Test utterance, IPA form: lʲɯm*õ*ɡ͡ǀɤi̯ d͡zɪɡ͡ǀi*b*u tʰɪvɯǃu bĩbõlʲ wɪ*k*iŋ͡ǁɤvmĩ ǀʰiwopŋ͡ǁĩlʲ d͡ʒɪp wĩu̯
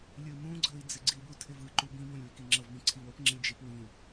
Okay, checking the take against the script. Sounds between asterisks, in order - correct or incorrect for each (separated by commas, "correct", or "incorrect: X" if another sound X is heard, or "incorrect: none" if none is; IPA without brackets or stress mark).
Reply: incorrect: ũ, correct, correct